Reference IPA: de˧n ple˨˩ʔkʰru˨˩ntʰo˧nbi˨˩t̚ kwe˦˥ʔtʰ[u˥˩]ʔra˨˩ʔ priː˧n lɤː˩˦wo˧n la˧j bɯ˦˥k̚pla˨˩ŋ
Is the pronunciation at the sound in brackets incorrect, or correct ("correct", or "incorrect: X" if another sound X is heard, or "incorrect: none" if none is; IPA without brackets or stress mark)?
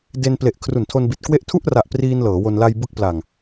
correct